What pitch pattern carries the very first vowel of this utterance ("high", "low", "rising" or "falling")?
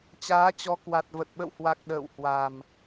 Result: rising